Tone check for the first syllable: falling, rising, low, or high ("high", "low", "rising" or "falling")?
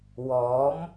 rising